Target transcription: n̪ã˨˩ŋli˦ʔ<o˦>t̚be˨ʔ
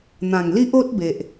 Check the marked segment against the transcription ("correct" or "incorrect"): correct